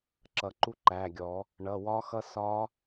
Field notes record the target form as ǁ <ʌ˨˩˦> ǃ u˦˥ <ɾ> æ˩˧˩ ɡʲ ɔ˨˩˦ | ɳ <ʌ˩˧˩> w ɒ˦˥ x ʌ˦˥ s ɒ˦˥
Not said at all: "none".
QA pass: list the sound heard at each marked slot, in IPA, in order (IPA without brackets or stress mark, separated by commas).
ʌ˨˩˦, ǃ, ʌ˩˧˩